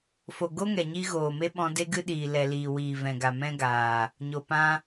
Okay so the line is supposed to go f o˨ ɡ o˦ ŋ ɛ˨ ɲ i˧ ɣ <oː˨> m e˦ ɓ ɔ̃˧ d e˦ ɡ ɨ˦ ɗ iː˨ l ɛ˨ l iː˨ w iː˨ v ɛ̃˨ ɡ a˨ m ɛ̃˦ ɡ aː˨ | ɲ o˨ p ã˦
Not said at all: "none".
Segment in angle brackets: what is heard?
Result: oː˨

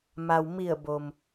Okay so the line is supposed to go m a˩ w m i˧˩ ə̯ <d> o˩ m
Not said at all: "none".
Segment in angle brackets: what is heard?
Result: b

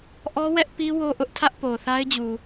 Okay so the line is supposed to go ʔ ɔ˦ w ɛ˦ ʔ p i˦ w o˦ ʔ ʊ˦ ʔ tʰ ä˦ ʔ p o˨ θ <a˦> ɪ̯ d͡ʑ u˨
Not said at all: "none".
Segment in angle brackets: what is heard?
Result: a˦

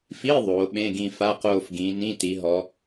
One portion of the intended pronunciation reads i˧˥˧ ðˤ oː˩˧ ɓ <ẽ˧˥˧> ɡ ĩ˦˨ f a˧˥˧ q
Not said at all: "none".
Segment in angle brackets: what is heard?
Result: ẽ˧˥˧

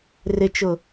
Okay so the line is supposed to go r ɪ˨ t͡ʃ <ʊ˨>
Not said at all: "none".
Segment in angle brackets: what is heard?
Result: ʊ˨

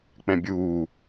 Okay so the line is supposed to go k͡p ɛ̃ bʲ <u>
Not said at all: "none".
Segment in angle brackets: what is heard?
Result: uː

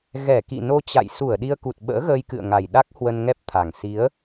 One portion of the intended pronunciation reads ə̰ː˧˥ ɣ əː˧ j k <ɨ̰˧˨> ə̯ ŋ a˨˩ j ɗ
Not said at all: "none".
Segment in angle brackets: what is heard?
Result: ɨ̰˧˨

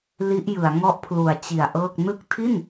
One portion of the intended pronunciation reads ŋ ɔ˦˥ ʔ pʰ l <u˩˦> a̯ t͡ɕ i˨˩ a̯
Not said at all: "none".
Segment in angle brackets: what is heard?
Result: u˩˦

